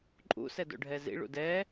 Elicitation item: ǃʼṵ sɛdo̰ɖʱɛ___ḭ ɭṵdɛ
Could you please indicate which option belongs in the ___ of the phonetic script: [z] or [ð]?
z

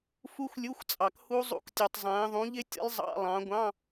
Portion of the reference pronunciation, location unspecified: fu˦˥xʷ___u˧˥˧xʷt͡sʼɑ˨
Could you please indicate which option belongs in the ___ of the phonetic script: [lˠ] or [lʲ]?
lʲ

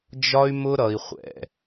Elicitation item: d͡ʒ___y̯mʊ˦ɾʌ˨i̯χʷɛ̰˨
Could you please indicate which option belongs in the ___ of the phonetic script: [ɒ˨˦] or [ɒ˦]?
ɒ˦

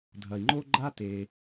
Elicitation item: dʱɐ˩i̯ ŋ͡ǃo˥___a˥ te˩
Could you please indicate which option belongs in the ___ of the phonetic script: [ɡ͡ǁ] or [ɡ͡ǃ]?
ɡ͡ǃ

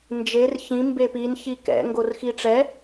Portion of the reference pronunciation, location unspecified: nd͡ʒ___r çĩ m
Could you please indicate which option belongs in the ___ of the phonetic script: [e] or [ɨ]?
e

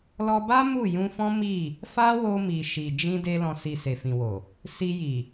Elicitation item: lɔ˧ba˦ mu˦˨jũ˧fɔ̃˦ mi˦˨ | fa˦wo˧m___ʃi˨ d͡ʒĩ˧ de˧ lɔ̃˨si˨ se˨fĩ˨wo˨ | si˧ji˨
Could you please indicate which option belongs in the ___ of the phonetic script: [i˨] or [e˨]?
i˨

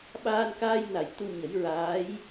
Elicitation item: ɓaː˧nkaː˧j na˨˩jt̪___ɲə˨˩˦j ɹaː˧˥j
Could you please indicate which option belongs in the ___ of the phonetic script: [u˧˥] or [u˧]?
u˧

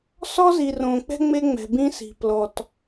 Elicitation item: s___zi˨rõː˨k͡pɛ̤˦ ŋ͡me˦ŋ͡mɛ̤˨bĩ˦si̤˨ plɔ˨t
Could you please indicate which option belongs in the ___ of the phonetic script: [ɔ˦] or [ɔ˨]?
ɔ˦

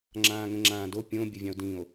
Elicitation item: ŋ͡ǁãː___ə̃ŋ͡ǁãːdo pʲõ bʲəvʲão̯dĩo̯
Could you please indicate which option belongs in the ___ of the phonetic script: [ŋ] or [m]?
ŋ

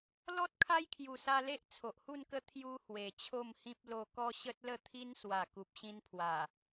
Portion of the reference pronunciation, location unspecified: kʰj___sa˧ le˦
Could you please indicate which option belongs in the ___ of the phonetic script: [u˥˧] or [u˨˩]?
u˨˩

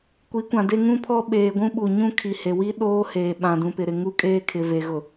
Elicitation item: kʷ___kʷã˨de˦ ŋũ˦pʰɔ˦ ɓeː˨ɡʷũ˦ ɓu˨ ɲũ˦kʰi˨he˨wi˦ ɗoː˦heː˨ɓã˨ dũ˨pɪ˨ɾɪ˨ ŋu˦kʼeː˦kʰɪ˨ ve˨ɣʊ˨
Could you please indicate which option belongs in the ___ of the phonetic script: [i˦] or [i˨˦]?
i˨˦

